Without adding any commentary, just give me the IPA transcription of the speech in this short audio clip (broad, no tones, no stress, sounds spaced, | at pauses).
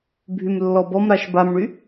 bʱ y m lː ɔ b ɔ m ɾ a ʃ b a m ɳ y